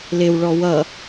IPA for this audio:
l ɪ w ɭ ɔ w ʌ

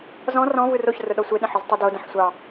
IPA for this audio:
z ɔ̃ r ɔ̃ v ɯ r o ç r ʊ ɗ ɔ sʷ e ɗ ə̃ ħ ʊ z tˤ ɵ d o d ə̃ ħ sʷ ɑ

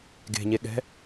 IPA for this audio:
ɡ e̤ ɲ e ɠ ɛ̤

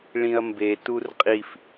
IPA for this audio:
ɭ ĩ ɐ̯ m b e t u r qʼ i f

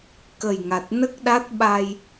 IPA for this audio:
k ə˨˩ j ŋ a˨˩ t̚ n ə˦˥ k̚ ɗ a˦˥ t̚ ɓ a˧ j

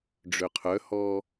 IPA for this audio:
ɖ͡ʐ ø qʰ œ h ɔː

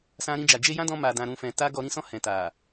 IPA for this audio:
s ã˧ ɾ ĩ˧ d͡ʒ a˨ d͡ʒ e˧ j ã˦ d ɔ̃˧ m a˨ d ã˧ ɾ ũ˧ f ɛ̃˧ t a˧ ɡ ɔ˧ ɾ ĩ˦ s ɔ̃˦˨ h ɛ̃˨ t a˨

